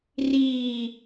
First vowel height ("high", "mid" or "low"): high